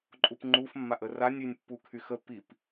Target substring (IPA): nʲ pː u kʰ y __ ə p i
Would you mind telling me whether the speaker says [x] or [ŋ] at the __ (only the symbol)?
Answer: x